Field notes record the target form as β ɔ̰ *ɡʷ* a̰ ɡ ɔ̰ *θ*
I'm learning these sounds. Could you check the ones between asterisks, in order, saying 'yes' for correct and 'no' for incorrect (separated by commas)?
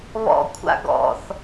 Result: no, yes